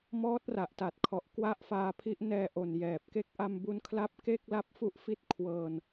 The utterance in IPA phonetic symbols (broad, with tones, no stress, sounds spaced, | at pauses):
m ɔː˦˥ t̚ r a˨˩ ʔ t a˨˩ t̚ kʰ ɔ˨˩ ʔ k w a˥˩ ʔ f aː˧ pʰ i˦˥ ʔ n ɛː˧ ʔ o˨˩ n j ɛː˨˩ p̚ k e˥˩ k̚ ʔ a˧ m b u˧ n kʰ l a˦˥ p̚ k e˥˩ k̚ l a˦˥ p̚ f u˦˥ ʔ f i˦˥ t̚ kʰ w ɤː˧ n